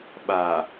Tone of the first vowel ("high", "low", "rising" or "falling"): low